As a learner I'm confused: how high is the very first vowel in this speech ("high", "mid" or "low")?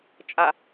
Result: low